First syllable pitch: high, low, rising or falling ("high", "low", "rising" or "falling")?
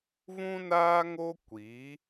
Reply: high